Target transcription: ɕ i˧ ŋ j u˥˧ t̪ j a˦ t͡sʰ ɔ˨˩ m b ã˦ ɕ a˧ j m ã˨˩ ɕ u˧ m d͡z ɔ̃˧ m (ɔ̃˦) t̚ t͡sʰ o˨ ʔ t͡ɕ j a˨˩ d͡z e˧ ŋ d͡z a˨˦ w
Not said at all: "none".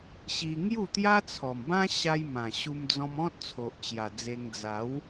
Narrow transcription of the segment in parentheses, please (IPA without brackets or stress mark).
ɔ̃˦